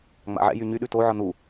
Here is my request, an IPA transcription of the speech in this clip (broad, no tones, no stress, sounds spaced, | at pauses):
ŋ͡m a̰ ʕ ɛ̰ j y ɲ y ɗ ʉ t o ʕ ɒ n u